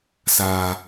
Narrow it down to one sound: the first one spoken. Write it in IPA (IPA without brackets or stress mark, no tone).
s